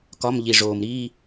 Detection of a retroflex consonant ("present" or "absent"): present